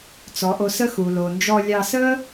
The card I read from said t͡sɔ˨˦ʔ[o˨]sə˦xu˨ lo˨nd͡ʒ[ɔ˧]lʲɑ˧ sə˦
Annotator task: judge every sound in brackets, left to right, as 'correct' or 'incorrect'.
incorrect: o˧, correct

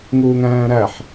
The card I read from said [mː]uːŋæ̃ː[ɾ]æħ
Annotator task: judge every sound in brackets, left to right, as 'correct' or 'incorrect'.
incorrect: ŋ, correct

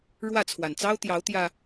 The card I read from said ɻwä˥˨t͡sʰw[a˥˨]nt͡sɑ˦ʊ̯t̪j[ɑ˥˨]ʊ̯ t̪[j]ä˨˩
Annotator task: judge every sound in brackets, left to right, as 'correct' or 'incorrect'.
incorrect: a˨˩, incorrect: ɑ˨˦, correct

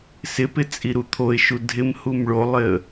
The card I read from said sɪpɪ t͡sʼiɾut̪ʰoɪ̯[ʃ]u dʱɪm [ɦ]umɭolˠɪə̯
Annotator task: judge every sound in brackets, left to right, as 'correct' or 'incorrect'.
correct, incorrect: h

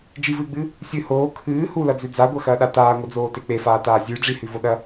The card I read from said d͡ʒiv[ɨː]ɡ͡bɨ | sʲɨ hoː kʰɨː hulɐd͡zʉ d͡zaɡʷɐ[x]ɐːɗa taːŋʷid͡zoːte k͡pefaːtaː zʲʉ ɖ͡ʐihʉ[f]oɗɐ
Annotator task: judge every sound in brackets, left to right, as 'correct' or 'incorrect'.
correct, correct, incorrect: v

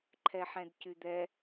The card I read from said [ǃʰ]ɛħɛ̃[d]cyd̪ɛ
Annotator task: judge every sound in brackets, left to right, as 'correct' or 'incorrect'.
correct, correct

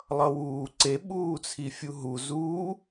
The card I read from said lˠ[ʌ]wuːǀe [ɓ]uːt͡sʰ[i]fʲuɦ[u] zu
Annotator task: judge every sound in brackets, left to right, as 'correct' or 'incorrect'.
correct, correct, correct, correct

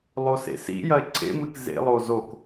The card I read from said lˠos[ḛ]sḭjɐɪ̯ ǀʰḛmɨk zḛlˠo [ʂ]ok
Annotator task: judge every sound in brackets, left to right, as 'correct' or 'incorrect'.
correct, incorrect: z

